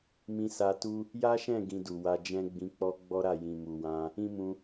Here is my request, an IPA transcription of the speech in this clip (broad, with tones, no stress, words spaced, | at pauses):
mĩ˧sa˧tu˦ | ja˦ʃɛ̃˦˨ ɡĩ˧du˨wa˧d͡ʒɛ̃˦ ɡ͡bĩ˧k͡pɔ˦ɡ͡bɔ˦ɾa˦˨ jĩ˨mu˨wã˧ | ĩ˦mũ˧